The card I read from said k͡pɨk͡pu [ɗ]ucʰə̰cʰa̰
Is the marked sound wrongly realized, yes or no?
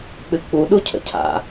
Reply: no